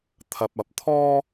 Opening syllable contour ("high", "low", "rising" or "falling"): low